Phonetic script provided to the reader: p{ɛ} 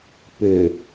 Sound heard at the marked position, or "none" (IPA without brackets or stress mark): ø